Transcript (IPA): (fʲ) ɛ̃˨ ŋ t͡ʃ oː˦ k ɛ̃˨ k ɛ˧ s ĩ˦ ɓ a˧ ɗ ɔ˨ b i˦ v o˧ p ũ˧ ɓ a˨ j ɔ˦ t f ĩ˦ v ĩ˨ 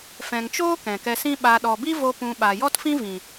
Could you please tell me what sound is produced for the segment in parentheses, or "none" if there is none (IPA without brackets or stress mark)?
f